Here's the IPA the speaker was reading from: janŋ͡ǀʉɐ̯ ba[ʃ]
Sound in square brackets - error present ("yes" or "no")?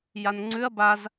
yes